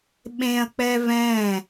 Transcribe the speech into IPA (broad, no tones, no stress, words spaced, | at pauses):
ɓẽɐ̯k͡pɛ vɛ̃